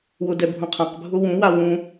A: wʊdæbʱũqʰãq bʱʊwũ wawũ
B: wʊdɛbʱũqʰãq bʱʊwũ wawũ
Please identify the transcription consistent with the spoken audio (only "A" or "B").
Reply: B